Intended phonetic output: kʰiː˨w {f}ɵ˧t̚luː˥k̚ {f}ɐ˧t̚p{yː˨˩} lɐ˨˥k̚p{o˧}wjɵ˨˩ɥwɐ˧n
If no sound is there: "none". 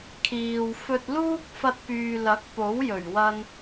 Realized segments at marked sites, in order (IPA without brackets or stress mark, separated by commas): f, f, yː˨, o˨˥